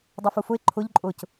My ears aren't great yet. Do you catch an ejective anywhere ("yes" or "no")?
yes